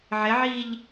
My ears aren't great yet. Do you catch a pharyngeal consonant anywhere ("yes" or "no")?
yes